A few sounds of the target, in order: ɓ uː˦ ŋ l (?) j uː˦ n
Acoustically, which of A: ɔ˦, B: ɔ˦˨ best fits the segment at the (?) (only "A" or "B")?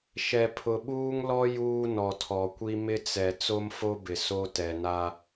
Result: A